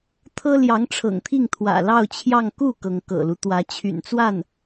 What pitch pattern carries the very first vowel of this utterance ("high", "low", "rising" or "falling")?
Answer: high